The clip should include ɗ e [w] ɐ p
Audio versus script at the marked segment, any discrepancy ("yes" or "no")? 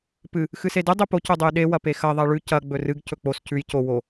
no